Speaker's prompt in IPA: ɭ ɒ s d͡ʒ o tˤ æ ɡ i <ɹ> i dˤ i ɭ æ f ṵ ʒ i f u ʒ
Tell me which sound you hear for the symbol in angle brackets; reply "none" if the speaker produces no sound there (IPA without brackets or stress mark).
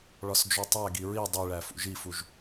ɹ